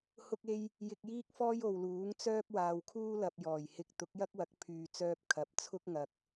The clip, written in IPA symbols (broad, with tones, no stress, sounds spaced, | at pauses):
h ʊ˥ k̚ e˥ j | j ɪ˧ k̚ j iː˥ k̚ f ɔː˥ j o˨ w l uː˨˥ ŋ t͡s œː˥ p̚ w aː˨ w kʰ uː˥ l ɐ˨ p̚ j ɔː˨˩ j h ɪ˧ k̚ t̪ ʊ˨˥ k̚ j ɐ˥ k̚ w ɐ˨˥ k̚ pʰ yː˨ t͡s œː˧ p̚ kʰ ɐ˨˥ p̚ t͡sʰ ʊ˥ k̚ ŋ ɐ˨ k̚